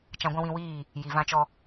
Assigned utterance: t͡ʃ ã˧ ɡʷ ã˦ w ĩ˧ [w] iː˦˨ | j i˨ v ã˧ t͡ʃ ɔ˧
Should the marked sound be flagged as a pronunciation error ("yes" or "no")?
no